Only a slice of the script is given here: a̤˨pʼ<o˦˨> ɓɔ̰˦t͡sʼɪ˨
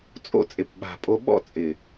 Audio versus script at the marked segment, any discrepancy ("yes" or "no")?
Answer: yes